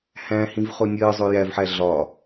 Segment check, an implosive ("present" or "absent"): absent